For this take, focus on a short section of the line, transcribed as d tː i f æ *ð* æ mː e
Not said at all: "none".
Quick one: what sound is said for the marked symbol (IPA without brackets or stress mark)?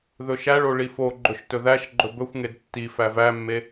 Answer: v